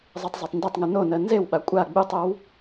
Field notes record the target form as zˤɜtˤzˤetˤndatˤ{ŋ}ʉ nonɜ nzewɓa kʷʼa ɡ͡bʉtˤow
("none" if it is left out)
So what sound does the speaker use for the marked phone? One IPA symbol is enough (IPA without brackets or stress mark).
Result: ŋ